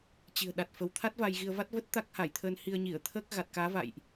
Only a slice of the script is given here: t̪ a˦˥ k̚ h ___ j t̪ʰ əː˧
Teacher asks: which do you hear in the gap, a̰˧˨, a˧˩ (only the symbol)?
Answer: a˧˩